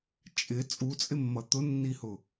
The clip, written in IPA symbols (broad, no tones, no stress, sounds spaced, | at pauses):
t͡ʃʼ ɪ t͡sʼ u t͡sʼ ɪ mː ʌ t̪ ʊ nː i h ʊ